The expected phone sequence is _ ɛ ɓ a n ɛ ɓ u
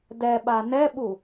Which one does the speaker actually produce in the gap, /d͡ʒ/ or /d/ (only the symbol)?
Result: d